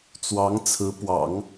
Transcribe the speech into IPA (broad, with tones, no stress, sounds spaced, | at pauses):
t͡s w ɑ˧˥ ŋ t͡sʰ ɹ̩˧˥ p w ɑ̰˨˩˦ ŋ